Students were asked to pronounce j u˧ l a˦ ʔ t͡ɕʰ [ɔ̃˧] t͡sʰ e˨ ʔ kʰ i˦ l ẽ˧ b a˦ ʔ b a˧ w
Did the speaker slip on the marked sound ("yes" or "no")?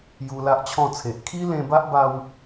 yes